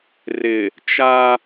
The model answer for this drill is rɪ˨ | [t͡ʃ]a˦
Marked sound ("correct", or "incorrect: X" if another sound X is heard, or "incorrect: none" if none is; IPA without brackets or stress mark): correct